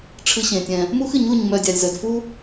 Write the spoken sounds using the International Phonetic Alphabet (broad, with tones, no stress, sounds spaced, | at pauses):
ʈ͡ʂʰ ɨ˦ ɕ ẽ˧ tʲ ɛ̃˧ | m u˦ x ɨ˨˦ ɲ u˦˨ ɲ m œ˧ dʲ a˧ lʲ z œ˧ d f u˦